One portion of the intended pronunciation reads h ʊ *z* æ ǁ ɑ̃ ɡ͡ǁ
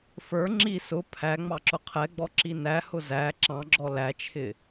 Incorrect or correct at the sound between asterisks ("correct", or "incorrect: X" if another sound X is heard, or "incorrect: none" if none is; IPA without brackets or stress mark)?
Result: correct